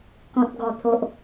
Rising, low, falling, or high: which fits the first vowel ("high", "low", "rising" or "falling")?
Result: low